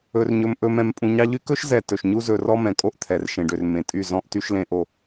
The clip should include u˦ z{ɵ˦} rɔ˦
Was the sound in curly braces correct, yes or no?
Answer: no